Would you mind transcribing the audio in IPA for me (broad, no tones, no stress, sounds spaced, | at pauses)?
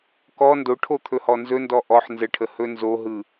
k ɔ n d o ʈʰ o t̪ʰ ɵ h ɔ n z ɵ n d ɔ ʔ ɔ ħ n z ə ʈʰ ə h ɵ n z o ɦ ɯ